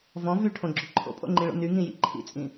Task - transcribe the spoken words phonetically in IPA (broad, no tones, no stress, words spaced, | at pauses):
vɔ̃ vyʈʰõɡ͡ǁʏ ǃʰo̰pʼo̰ŋ͡ǃĩɭo̰ nyŋĩjḭ ǃʰḭt͡sʼĩ